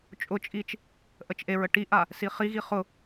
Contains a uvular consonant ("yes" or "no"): yes